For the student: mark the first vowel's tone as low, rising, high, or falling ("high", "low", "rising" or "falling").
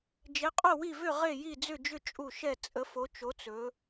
rising